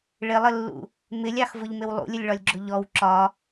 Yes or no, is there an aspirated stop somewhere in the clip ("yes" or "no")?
no